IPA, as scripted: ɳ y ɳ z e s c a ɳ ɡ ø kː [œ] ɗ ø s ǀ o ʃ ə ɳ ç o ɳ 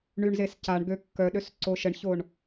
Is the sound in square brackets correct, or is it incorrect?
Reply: correct